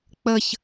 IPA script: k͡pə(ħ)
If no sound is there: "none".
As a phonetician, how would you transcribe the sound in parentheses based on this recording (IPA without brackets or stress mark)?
ç